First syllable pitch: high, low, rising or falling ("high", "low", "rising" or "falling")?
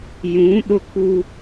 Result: rising